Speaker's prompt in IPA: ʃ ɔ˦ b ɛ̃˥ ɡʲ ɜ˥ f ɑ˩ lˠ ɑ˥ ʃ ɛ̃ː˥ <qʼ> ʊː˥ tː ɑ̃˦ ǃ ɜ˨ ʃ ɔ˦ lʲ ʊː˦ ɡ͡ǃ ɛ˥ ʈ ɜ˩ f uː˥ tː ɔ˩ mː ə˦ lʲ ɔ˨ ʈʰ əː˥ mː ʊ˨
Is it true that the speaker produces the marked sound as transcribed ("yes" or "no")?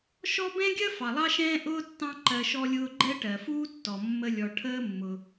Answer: no